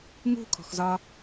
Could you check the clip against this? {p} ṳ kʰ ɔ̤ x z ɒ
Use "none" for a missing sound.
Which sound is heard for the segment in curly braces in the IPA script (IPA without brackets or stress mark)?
m